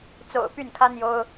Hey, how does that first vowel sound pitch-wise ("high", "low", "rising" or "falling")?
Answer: low